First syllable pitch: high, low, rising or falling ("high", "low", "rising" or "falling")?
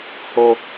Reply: high